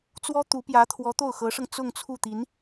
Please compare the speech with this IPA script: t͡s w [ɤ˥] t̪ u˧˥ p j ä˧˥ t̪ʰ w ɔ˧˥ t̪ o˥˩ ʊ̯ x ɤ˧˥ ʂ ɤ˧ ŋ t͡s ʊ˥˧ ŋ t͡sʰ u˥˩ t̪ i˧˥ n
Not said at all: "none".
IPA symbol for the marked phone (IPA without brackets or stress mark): ɔ˥